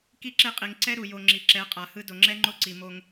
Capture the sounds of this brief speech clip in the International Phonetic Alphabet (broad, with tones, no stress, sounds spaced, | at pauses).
k i˦ ǁ e˦ qʼ i˨ ŋ ǀ ɛ˦ ɾ u˨ j o˨ ŋ͡ǁ i˨ ǁ ɛ˨˦ qʼ a˨ h ɯ˦ d o˨ ŋ͡ǁ ɛ˦ ŋ͡ǃ o˦ ǀ i˨ m o˦ ŋ